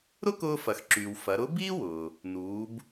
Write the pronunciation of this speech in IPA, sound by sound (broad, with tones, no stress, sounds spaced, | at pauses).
ɾ ʊ˥ k ʊː˧ f ɐ˩ x ǁ yː˩ w f ɐ˩˧ ɾ ʊ˧˥ b iː˥ w ʊː˩ | n uː˩˧ b